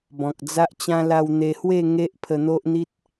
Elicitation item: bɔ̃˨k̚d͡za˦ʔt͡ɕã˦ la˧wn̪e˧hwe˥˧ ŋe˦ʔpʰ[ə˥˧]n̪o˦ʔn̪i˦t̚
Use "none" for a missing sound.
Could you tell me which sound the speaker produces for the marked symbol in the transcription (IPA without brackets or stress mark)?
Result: ə˧